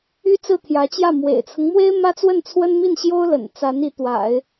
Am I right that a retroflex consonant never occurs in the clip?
yes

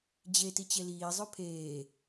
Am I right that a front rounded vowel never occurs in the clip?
no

